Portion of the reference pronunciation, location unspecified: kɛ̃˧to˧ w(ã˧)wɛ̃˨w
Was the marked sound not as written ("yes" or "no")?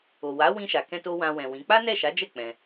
no